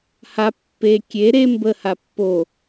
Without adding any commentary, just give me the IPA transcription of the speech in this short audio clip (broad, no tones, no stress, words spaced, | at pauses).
ha pːe kʲe ɾe mbəha pːo